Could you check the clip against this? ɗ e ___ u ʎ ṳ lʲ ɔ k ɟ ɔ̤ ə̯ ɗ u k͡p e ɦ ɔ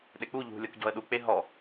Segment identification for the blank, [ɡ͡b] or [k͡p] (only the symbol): k͡p